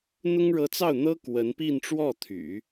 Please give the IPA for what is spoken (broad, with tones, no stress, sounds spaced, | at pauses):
n̪ ʊ˥ ŋ ɻ ɤ˧˥ t͡s ɑ˥˩ ʊ̯ n̪ ɤ˥ k w ə˧˥ n p i˥˧ n ʈ͡ʂ w ɔ˥˩ t̪ʰ y̰˨˩˦